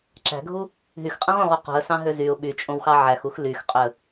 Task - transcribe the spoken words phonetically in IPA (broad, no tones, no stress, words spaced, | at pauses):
ǁæ̤ɡʱu | ɦyxqʼɛ̃ʁõʁu qṳə̯sɑ̃ɦø zyʊ̯ ɓyt͡ʃʼõwxɑ ʕæxux lyxqʼøə̯